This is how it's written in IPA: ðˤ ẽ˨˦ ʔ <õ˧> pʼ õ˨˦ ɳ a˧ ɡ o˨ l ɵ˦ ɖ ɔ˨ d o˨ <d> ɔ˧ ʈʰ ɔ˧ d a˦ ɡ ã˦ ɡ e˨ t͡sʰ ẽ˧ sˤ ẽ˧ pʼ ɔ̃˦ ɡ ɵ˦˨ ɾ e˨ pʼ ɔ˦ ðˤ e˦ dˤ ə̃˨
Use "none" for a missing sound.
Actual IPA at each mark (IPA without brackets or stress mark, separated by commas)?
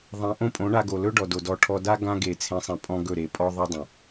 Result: õ˦, d